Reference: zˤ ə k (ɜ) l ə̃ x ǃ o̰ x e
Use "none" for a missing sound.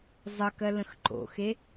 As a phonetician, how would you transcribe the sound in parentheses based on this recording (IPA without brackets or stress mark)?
ɜ